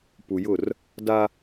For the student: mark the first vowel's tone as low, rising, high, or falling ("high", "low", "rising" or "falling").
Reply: low